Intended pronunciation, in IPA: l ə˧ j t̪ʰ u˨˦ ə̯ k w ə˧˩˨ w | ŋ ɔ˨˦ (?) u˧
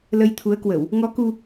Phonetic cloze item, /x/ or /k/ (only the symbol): k